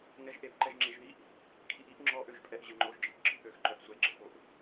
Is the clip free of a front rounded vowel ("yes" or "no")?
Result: no